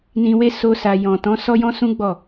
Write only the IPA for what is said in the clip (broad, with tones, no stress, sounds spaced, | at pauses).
n ĩ˧ w e˦ s o˦ s a˧ j ɔ̃˨ t ɔ̃˨˦ s ɔ˦ j ɔ̃˦ s ũ˦ ɡ͡b ɔ˦˨